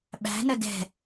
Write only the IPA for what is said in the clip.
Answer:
ɓ æ̤ n ə d ɛ̤

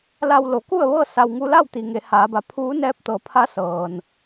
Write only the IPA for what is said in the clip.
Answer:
l a˧ w l o˩˧ k u˥˨ ə̯ ʋ ɤː˥˨ s a˧ w ŋ u˧˥ l a˥˨ w t̪ i˩ ŋ e˩˧ h aː˩˧ b a˩˧ pʰ uː˧˥ n ɛː˧˥ p̚ t̪ ɤː˩˧ pʰ a˧˥ s ɤː˩ n

